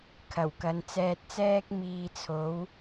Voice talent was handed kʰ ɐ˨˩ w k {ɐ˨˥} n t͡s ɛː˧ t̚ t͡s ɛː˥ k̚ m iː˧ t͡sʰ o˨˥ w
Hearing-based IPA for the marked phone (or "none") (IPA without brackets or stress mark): ɐ˨˧